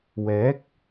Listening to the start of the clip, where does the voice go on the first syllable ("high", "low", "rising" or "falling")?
rising